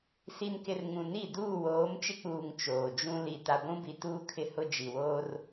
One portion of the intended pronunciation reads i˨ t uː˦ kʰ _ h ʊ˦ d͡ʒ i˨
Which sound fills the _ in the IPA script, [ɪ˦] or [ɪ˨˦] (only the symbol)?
ɪ˦